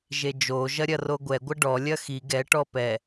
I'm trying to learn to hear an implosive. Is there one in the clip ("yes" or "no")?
no